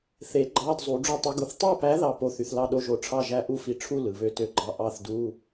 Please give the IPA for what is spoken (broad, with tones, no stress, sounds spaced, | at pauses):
θ e˨˥ ɡ͡ǃ ɑ˧˥˧ d zˤ u˨˥ ɖ͡ʐ u˥˩ tˤ ɯ˨˥ ɡ u˨˥ θ tˤ o˥˩ p æ˨˥ ð ɑ˥˩ p o˨˥ θ y˨ θ l ɑ˥˩ ɗ o˨˥ ʒ o˨ ʈ͡ʂʰ ɑ˥˩ ʒ æ˥˩ ʔ u˥˧ f i˨ ʈ͡ʂʰ u˥˧ l ɯ˨ β ø˥˧ t ø˥˩ ɡ͡ǃ ɑ˥˩ ʔ ɑ˥˩ θ d u˧˥˧